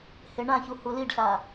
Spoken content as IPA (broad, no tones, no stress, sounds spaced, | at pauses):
h e ɳ ã ç u h u l i ɖ ɬ a